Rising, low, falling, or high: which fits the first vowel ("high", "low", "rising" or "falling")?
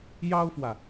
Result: high